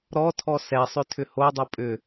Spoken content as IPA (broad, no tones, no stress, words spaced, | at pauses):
ɾɔtʰɔ sɛsˤʏ tʰʏhodˤu pʼʏ